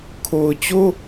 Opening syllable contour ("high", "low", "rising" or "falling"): low